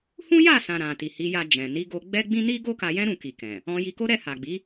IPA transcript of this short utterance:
hũ˦ja˦˨sã˨ ɾã˨ti˨hi˨˦ja˧ d͡ʒɛ̃˨ ni˨˦ɡo˧ ɡ͡bɛ˦ɡ͡bĩ˦ ni˦ɡo˦ka˧jɛ̃˦ ɾũ˦˨ki˨kɛ̃˨ | ɔ̃˧ji˧ko˦ ɾɛ˦˨ha˨ɡ͡bi˨˦

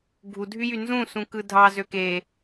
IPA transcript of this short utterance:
ɡʱudʱyjy nzũsũkɯ dʱɑzø ke

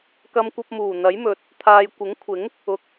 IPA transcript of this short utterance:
kɐ˧mkʷɐ˧p̚ muː˨˩n̪ɐ˨˥jmɵ˨t̚ | t̪ʰaː˨jkʷɪ˨˥ŋkʷʰɪ˨˥ŋ | ʊ˨k̚

